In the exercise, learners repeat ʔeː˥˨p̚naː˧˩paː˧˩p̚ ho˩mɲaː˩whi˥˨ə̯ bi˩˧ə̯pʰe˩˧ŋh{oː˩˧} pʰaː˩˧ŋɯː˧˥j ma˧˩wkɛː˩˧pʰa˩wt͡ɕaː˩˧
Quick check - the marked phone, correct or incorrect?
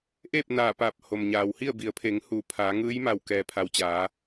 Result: incorrect